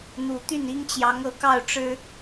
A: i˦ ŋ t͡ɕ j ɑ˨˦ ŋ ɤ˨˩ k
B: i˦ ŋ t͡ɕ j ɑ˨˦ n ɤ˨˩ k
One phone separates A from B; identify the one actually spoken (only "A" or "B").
A